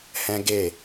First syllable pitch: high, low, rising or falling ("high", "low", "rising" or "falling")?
high